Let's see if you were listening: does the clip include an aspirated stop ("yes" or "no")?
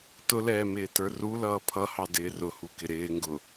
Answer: yes